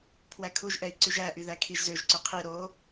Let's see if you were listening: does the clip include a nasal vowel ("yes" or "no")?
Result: no